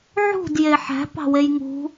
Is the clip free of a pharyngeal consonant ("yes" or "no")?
no